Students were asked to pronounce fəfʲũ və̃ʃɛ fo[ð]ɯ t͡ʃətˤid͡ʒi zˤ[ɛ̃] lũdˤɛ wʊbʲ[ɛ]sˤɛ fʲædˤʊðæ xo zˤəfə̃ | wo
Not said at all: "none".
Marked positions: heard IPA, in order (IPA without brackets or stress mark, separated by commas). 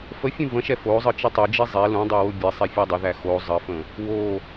zˤ, ɛ, ɛ